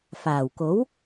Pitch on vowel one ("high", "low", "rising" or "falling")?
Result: low